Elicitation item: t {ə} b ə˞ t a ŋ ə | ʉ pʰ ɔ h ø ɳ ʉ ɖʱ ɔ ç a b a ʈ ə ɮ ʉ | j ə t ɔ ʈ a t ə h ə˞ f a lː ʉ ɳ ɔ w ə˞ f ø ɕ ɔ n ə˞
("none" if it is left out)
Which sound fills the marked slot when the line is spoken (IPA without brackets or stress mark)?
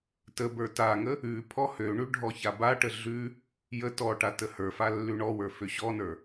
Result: ə